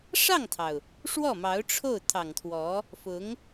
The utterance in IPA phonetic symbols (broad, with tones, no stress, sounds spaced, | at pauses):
ʂ ɑ˥˩ ŋ t̪ʰ ɑ˩ ʊ̯ | ʂ w ɔ˥˩ m ɑ˧˥ ʊ̯ ʈ͡ʂʰ o˥˩ ʊ̯ t̪ʰ ɑ˨˩ ŋ t̪ʰ w ɔ˧˥ | f ʊ˧˥ ŋ